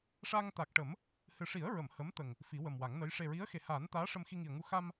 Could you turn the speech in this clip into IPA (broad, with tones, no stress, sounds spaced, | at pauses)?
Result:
ʂ a˧ ŋ t̪ a˨˩ k̚ ʈ ə˨˩˦ m | h ɨ˨˩ ʂ i˨˩˦ ə̯ ɹ ə˨˩˨ m h ə˧˥ m t̪ ə˨˩ ŋ | f i˨˩˦ w ə˨˩ m w a˨˩˦ ŋ n ə˧˥ j ʂ e˨˩ ɹ i˧˥ ə̯ x e˨˩ h aː˨˩˦ n t̪ aː˧˥ ʂ ə˧ m x i˧ ŋ i˨˩ ə̯ ŋ u˧ x a˧ m